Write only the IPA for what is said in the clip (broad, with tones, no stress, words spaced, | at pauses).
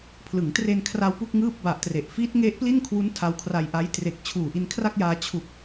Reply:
pʰlɯ˩˦ŋtre˧nkʰra˧w pu˥˩k̚ŋɯː˥˩p̚ba˨˩ʔtre˨˩ʔ fiː˦˥t̚ŋe˦˥ʔpli˥˩nkʰwu˦˥n tʰa˧wkʰra˧jʔa˦˥j tre˨˩k̚ t͡ɕʰuː˨˩ʔi˧nkʰra˥˩k̚jaː˧ t͡ɕʰu˨˩k̚